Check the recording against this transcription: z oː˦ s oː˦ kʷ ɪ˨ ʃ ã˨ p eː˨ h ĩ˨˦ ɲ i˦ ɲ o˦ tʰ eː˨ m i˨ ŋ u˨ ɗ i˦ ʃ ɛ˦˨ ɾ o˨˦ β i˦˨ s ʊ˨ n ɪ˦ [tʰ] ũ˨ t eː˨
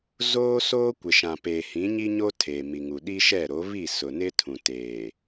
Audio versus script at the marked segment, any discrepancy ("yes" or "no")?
no